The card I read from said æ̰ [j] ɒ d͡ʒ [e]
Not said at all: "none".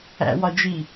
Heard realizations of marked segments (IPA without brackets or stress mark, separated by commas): w, i